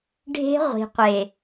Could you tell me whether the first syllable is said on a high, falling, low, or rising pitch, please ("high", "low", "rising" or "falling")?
high